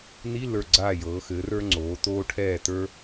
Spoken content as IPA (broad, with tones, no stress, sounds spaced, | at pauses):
n i˧˥˧ lː ə˞˧˩ ɡ͡ǀ aː˧˩ j ɤː˩˧ x ɘː˩˧ r ə˞˧ ŋ͡ǀ oː˩˧ t oː˧ ʈʰ ɛː˧˩ t ə˞˧